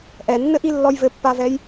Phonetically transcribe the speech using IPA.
ʔ ɛ nː ɘ ʔ i lː ɔ j v ɘ pː a v ɛ j

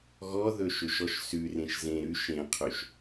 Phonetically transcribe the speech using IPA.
ɣ ɔ ð ɵ ʃ ɵ ʃ ɔ ʃ s ʉ r ẽ ʃ z ẽ ɾ ʉ ʃ ẽ qʰ ø ʃ

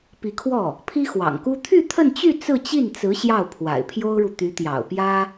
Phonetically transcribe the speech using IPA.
p i˧˥ kʰ w ɔ˥˩ | pʰ i˥ x w ɑ̰˨˩ ŋ k u˥ t̪ʰ y˥˧ t̪ʰ ə˥˧ n t͡ɕ y˥˧ t͡s ɹ̩˥˧ t͡ɕ i˥˩ n t͡s ɹ̩˧˥ ɕ j ɑ˥˩ ʊ̯ pʰ w a̰˨˩ ɪ̯ pʰ j o˥ ʊ̯ ɻ u˨ t̪ y˧˥ t̪ j ɑ̰˨˩ ʊ̯ p j ä˥

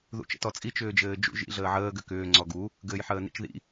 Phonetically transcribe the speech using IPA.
ð ṵ t͡ʃ ə̰ t ɔ t͡sʼ i t͡ʃ ʏː d͡ʒ ɘː d͡ʒ ṵ ʒ ḭ ɮ əː ʕ əː ɡ ʏ k ʏː ŋ͡ǀ ɔ ɡ u | ɡ ɘː j ħ əː n ḭ t͡ʃ ð ḭ

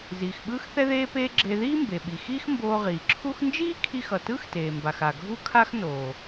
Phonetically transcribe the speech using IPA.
z iː˩ x ɓ ɯː˥ x θ ɛ˥ ð eː˥ p eː˥ ɡ͡ǁ e˧ ð iː˥ m b e˩ ɓ i˩ x iː˥ x m b oː˧ ʁ iː˩ ǁʰ u˥ x n d͡ʒ iː˥ kʰ i˧ x ʌ˩ t ɯ˥ x t eː˩ m b a˩ x a˩ ɡʱ u˥ kʰ a˥ x n oː˩

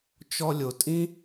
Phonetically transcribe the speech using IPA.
t͡ʃ ɔ˧ lʲ o˨ tʼ ĩ˦

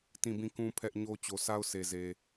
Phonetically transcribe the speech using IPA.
t ĩ˦˨ b ĩ˦˨ k ũ˦ pʰ ɛ˦ ʔ ɲ o˦ t͡ɕ o˨ s a˦ ʊ̯ s e˨ z e˨

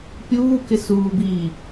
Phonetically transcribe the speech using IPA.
pʲ uː k ɪ s uː b iː

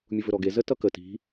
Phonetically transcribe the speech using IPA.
mʲ u v ɵ ɾ ɔ ɡ e z ə t ʌ k ə t i̤

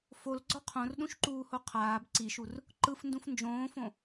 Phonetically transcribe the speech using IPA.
f o l ɡ͡ǀ ɔ qʰ õ r ɗ ũ ʃ ǃ uː h o qʰ aː b ǀ i ʃ u r | ǃ ɯ f n d ũ f n d͡ʒ õː f õ

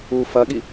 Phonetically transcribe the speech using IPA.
u f ɐ ɠ i

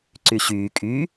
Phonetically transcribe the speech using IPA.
ǀ y ɕ yː kʼ y

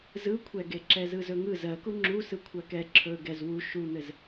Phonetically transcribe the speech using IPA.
z ɯ kʷʰ ɛ ɡ e ǁ ɛ z ɯ z ɵ ŋ ɯ z ɜ k u ŋ͡ǁ u s ɯ kʷʰ ɜ k ɛ ǁʰ ɵ ɡ ɛ z w u ʃ u n̪ ɘ z

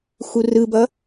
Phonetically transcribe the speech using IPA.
x u r ɯ b ʌ

